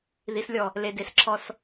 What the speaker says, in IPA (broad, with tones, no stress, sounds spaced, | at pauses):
ð i˨˦ s lʲ ɔ˨ | l e˨ d e˨ s ǁʰ ɔ˦ s